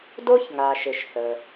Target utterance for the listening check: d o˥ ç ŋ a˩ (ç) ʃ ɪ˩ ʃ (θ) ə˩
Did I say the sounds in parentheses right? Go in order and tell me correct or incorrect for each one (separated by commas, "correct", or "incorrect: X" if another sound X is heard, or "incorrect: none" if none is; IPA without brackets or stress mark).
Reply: incorrect: none, correct